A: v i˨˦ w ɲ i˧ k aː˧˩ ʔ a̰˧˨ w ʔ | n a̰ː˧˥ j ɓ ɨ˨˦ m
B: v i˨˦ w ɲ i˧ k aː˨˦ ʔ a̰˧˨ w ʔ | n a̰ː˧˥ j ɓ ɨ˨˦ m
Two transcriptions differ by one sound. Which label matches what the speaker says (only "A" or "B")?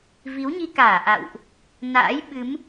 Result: A